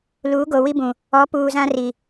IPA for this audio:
l uː˨˦ ɡ o˨ w i˦ b ũ˨ | ɔ˨˦ p uː˨ z ã˦ r i˨

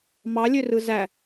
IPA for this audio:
m ɑ lʲ ø r ɯ z æ

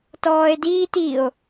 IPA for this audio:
t ɔː e̯ d iː t i o̯

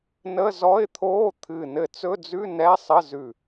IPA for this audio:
n ə˧˥˧ z ɔ˧˥˧ ɪ̯ t̪ʰ oː˧˥˧ t̪ʰ ɨ˧˩ n ɘ˧˩ t͡s ɵ˧˥˧ d͡z ʉ˧˥˧ n ɛ˧˥˧ sˤ ə˧˥˧ z ʉ˧˩

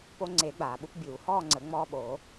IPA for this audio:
p o˧ ŋ͡ǀ e˨˩˦ ɡ͡b aː˩ ɓ u˧ p bʲ uː˨˩˦ h ɔː˥˧ ŋ͡ǀ ə˨˩˦ ŋ͡m ɔː˧ ɓ oː˨˩˦

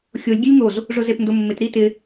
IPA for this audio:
xʲ o lʲ ɡʲ ɛ lʲ ŋ o z | ʐ ʊ z e p n d ʊ mː ɪ t ɾ i t ɪ

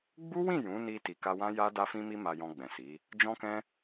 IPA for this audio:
ɡ͡b u˦ w ĩ˦˨ j ũ˨˦ n i˧ t i˨ k a˧ w ã˦ j a˦ d a˧ f ĩ˧ m i˧ m a˨ j ɔ̃˧ ɡ͡b ɛ̃˨ s i˨˦ | d͡ʒ ɔ̃˦ k ɛ̃˦

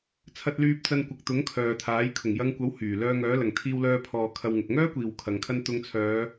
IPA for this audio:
t͡sʰ ɐ˧ t̚ l yː˧ p̚ t͡s ɐ˧ n kʷ ɐ˨ k̚ t̪ ʊ˨˥ ŋ kʰ œː˨ t̪ʰ aː˨˥ j kʰ ʊ˨˩ ŋ j ɐ˧ ŋ kʷ ɐ˨˥ w h yː˨˩ l œː˧ ŋ œː˨˥ l ɐ˨˩ ŋ t̪ʰ iː˧ w l œː˧ pʰ ɔː˨ kʰ ɐ˧ w ŋ ʊ˨ k̚ ŋ œː˥ kʷ iː˨ w kʰ ɐ˨ ŋ kʰ ɐ˧ n t̪ ʊ˨˧ ŋ t͡sʰ œː˨˧

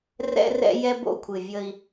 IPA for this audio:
r ɛ̰˦ r ɛ̰˦ j ɛ˦ b o̰˦˨ kʷʰ ɨ˨ vʲ ə˦ i̯

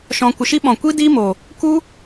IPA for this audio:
ʃ ɔ̃˨ kʷ ə˨ ʃ i˧ ɓ ɔ̃˨ kʷ i˦ d iː˦ m o˨ | k u˦

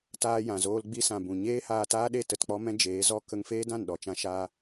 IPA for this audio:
t aː˧ j ã˨ z oː˧ l ɡ͡b i˧ s ã˨ b ũ˨ ɲ eː˦ h aː˧ t aː˦ ɗ e˦˨ t ə˦˨ t k͡p ɔ˦ m ɛ̃˦ d͡ʒ eː˨˦ z ɔ˦ k ə˧ ŋ f eː˦ d ã˦˨ n ɗ ɔ˨ t͡ʃ ã˧ ʃ aː˦

